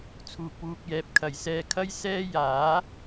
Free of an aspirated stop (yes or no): no